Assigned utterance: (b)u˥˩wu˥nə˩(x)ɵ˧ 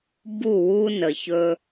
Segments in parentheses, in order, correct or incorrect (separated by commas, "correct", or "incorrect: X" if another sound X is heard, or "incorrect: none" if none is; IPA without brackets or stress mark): correct, incorrect: ç